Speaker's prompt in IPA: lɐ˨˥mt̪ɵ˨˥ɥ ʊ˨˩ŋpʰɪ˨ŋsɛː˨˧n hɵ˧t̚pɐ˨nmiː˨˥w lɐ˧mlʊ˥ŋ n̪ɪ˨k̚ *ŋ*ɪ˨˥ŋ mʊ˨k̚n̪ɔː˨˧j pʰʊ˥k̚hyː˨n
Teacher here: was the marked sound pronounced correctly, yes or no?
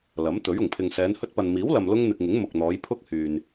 yes